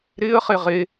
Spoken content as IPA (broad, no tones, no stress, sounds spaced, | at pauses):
ɾ ɪː ə̯ χ e ʁ e